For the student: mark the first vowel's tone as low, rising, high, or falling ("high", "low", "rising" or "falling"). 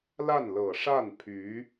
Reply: falling